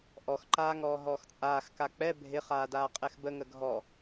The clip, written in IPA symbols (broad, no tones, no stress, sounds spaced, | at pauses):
ʔ ɔ x ǃ aː ŋ ɔː ɦ ɔː x t͡sʼ aː x k a k͡p ɛ bʱ ɪ χ aː d aː qʼ ɛ x b ə ŋ ə ɡʱ ɔ